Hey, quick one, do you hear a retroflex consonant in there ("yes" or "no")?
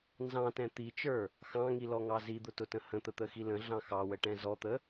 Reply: yes